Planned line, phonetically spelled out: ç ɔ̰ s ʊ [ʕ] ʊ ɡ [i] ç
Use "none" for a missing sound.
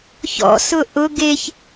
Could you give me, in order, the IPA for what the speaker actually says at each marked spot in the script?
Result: ʔ, e

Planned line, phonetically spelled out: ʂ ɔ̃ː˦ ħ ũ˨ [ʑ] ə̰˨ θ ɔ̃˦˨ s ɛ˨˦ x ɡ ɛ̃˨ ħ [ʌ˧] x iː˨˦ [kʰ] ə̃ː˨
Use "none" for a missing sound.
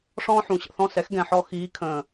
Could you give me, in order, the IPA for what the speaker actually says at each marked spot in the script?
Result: ɕ, ɔ˧, kʰ

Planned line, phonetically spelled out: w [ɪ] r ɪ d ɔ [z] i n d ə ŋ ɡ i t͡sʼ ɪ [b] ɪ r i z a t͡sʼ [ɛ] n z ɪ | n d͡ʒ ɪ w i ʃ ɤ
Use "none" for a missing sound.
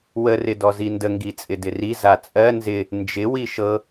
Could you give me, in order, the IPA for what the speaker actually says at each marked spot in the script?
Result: ə, z, d, ɜ

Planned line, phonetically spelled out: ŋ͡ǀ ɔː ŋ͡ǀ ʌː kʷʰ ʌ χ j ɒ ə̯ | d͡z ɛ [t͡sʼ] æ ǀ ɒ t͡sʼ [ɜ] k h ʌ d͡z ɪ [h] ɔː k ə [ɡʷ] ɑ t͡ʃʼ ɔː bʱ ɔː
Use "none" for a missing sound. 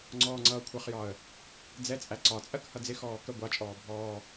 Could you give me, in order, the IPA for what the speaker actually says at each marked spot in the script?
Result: t͡sʼ, ɜ, x, ɡʷ

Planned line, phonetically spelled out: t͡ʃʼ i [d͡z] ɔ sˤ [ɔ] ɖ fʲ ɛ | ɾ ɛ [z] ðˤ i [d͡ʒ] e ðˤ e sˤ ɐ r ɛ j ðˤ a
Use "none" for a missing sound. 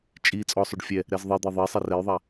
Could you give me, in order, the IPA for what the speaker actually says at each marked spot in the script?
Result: t͡sʼ, o, z, d̪

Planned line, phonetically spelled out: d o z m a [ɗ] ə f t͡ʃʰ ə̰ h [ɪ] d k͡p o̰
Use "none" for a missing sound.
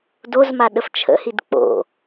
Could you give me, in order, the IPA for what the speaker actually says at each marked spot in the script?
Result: ɗ, i

